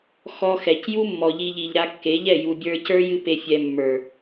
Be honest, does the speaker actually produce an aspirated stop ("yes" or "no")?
no